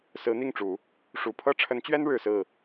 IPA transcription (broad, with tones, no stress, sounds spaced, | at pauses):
s ɹ̩˧˥ n̪ i˥˩ ŋ ʈ͡ʂ u˨˩˦ | ʂ u˨˩ pʰ ɤ˥ ʈ͡ʂʰ ə˧˥ n t͡ɕ ɥ ɛ˥ n ɻ ɻ̩˨˩ s ɹ̩˥˩